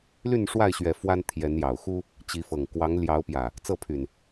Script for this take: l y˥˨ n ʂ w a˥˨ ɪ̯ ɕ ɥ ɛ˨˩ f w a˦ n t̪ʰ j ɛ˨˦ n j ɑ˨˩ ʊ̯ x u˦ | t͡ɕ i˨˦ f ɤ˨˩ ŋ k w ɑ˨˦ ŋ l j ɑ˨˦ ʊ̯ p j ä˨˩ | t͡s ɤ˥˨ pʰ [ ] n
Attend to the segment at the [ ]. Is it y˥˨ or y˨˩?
y˨˩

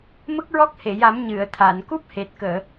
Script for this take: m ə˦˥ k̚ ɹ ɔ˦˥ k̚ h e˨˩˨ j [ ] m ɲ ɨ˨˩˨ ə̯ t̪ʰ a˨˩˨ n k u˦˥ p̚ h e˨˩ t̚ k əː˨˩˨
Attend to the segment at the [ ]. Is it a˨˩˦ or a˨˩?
a˨˩˦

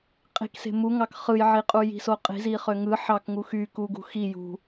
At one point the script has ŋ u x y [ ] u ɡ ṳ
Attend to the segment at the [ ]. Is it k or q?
k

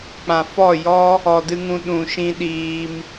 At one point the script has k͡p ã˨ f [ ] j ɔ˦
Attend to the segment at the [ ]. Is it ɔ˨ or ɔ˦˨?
ɔ˦˨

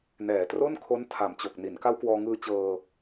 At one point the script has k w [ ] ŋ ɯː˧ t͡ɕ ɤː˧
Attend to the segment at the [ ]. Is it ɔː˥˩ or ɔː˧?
ɔː˧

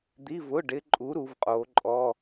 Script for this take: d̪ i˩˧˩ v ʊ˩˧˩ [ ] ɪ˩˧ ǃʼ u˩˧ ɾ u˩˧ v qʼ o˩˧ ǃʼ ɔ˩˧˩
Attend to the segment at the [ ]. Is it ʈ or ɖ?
ɖ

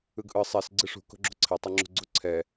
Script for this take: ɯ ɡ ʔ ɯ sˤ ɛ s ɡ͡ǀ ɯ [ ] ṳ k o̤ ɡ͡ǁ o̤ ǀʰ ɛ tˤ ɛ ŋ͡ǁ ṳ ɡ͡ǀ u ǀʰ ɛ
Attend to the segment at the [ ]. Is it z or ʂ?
ʂ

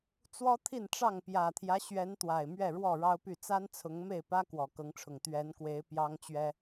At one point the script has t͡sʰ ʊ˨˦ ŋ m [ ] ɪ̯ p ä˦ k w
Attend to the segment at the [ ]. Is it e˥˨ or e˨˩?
e˥˨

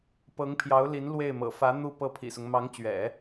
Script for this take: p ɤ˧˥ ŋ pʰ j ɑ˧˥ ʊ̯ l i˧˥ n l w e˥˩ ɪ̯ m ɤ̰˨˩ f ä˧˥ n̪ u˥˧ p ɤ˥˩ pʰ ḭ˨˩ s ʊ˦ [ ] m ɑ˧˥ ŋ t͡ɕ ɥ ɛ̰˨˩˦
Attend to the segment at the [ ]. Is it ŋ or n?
ŋ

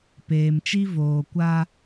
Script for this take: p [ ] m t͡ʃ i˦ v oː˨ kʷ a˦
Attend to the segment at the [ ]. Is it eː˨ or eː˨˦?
eː˨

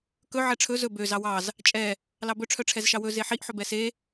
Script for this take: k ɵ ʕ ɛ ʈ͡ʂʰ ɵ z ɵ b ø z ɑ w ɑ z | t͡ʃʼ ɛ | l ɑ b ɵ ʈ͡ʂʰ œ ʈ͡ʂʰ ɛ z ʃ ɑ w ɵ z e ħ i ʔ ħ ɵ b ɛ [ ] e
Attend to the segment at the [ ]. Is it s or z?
s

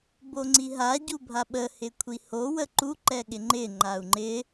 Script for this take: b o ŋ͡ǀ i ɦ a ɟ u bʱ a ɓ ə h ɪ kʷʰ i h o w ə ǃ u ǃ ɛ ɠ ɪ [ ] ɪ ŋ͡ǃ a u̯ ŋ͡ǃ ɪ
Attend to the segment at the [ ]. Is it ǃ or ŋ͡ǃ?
ŋ͡ǃ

